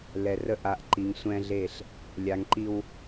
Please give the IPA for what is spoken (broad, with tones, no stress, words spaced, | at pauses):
lɛ˨rə˦˨ʔ a˨ʔǃi˨ŋ sʷɛ̃˦ɮe˦˨ɬ | lʲa˨ŋǃi˦w